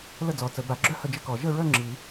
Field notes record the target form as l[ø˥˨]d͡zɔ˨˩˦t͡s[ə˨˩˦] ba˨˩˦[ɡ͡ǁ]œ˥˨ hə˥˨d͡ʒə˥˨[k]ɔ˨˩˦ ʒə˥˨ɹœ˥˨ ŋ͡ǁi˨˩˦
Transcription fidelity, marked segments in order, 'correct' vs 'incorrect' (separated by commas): incorrect, correct, correct, correct